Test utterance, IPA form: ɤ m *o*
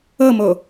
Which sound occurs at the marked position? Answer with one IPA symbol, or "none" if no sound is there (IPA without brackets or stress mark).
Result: o